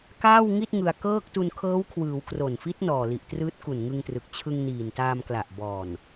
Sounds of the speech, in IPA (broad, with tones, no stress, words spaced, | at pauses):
kaː˥˩wŋi˥˩t̚ ŋɯ˧a̯ kɤː˥˩k̚ tu˧nkʰɤː˦˥wkʰwɯː˩˦w kro˨˩nfi˦˥t̚ nɔː˨˩li˨˩ʔ trɯː˦˥t̚ku˨˩nŋɯ˧ŋtrɯ˨˩k̚ t͡ɕʰɯ˧ŋniː˨˩ntaː˧m kla˨˩ʔbɔː˨˩n